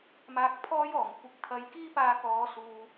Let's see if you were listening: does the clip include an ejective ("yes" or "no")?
no